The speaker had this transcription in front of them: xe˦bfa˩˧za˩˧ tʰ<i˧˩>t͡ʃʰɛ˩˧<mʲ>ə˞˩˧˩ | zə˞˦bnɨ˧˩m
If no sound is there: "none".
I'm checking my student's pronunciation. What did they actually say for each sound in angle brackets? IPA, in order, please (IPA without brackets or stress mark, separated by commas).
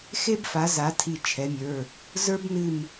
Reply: i˧˩, mʲ